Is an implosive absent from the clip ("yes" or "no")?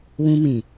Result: yes